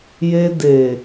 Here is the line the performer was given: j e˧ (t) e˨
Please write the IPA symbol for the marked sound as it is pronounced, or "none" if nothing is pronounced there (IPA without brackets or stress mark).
d